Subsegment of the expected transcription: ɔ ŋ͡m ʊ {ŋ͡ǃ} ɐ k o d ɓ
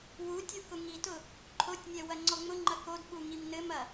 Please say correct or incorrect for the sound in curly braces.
correct